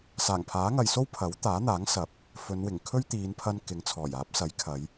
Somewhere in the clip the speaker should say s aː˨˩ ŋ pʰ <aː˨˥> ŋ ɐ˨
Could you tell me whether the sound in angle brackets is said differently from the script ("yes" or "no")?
no